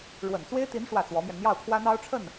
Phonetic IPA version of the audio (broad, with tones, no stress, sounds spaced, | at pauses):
ɻ w ə˨˩ n t͡s w e˥ ɪ̯ t̪ i˧˥ n ʂ w ä˥˩ t͡s w ɔ˧˥ m j ɛ˧ n n̪ j ɑ˥˩ ʊ̯ kʰ w ä˥ n̪ ɑ˥ ʊ̯ ʈ͡ʂʰ ə˥˩ n